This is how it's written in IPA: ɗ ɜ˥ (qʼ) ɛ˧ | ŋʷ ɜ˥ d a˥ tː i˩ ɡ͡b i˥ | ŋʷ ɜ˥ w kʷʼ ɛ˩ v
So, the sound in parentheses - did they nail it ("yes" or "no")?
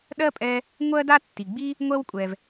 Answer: no